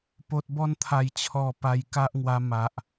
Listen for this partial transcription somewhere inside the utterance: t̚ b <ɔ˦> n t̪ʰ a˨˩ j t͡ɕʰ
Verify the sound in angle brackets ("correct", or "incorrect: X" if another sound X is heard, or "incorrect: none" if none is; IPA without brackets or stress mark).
incorrect: ɔ˧